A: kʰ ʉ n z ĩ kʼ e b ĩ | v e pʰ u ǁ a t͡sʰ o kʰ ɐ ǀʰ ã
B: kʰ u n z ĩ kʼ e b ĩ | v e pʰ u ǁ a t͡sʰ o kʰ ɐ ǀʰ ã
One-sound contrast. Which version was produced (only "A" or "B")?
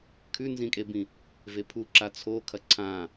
A